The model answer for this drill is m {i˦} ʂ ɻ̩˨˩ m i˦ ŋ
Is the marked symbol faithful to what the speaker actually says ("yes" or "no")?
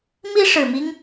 yes